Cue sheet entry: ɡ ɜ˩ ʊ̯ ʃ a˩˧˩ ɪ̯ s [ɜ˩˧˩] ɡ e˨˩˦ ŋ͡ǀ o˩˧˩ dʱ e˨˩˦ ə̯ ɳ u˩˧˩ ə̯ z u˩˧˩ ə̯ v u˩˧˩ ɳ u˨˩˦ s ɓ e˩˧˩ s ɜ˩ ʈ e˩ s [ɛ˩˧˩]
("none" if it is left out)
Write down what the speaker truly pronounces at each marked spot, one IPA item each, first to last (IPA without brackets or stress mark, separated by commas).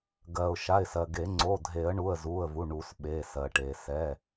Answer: ɜ˩, ɛ˩˧˩